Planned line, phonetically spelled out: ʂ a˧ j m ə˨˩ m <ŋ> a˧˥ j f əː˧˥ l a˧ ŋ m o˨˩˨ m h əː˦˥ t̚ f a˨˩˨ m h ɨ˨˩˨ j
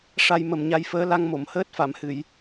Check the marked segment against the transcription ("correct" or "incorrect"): incorrect